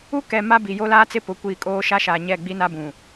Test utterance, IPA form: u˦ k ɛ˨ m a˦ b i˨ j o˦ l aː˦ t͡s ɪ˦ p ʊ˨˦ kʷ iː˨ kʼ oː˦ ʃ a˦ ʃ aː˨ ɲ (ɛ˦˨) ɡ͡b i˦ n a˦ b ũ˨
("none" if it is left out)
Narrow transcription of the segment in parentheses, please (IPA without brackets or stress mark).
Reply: ɛ˦˨